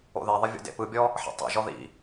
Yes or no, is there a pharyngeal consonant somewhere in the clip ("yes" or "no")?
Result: yes